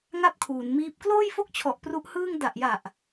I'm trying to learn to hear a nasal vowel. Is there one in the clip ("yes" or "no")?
no